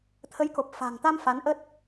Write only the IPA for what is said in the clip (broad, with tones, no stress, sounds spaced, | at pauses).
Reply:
t̪ʰ ə˨˦ j k o˨˩ p̚ f a̤˨˩ ŋ t̪ a˧ m f a˨˦ n ʔ ə˦˥ t̚